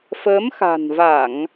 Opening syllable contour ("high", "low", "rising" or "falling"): rising